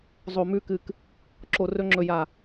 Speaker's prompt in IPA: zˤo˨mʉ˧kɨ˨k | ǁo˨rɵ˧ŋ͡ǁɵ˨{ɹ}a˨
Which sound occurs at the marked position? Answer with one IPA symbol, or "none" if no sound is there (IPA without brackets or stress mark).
j